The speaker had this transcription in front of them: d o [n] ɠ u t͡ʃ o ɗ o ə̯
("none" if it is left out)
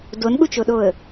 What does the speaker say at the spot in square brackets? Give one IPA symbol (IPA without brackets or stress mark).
n